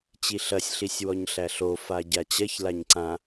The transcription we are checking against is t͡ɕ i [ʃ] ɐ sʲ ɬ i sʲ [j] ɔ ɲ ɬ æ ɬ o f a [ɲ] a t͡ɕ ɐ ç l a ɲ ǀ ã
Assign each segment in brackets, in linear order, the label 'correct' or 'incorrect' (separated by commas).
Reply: incorrect, incorrect, incorrect